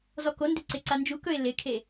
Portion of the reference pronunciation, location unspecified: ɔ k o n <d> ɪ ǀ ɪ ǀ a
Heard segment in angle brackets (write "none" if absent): d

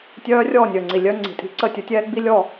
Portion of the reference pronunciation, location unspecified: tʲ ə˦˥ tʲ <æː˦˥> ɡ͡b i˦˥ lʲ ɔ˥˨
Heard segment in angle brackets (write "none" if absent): ɛː˦˥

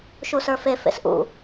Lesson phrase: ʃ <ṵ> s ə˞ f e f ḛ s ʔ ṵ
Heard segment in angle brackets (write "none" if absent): u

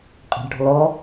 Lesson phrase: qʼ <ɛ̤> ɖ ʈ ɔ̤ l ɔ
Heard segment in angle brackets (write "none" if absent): ɛ̤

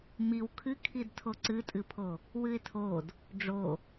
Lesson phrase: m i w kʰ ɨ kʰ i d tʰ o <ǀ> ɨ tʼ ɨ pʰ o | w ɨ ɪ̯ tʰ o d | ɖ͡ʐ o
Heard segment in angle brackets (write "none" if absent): ǀ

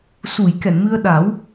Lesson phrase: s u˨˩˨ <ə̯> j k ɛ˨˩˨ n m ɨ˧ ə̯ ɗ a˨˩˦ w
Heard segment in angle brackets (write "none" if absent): none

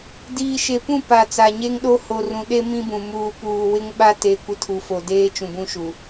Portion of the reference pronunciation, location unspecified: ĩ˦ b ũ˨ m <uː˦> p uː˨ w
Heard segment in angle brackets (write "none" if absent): uː˨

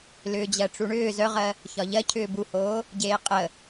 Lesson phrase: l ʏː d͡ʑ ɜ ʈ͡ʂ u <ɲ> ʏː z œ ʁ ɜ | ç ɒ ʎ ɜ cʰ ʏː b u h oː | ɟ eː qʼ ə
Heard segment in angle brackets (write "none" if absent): ɳ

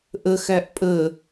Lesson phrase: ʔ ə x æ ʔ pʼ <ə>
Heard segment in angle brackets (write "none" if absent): ə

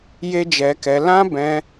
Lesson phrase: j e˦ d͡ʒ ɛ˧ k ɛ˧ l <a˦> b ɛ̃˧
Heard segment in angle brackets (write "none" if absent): ã˦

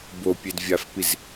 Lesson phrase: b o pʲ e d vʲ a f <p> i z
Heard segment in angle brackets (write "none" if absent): p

